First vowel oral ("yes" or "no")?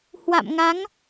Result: yes